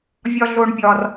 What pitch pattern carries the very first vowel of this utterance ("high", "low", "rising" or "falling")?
high